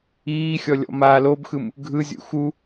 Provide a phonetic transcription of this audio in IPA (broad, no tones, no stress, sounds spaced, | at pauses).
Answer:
iː xʲ ɔ lʲ ɔ̰ m aː l o b x ɯ m | ɡʱ ɯ zʲ ṵ x u